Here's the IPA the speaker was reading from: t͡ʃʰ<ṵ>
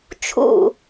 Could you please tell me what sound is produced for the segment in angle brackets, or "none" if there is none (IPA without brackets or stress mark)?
ṵ